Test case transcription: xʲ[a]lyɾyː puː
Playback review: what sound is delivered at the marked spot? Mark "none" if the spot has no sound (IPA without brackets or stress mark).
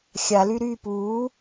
a